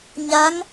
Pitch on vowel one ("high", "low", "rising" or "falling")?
rising